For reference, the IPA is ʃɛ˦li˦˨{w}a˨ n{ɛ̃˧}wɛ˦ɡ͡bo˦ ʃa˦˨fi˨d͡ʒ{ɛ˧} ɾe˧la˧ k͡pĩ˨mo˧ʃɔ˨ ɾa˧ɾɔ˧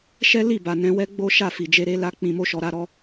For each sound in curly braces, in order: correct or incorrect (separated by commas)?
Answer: incorrect, correct, incorrect